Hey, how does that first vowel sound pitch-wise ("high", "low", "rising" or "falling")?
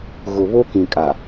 low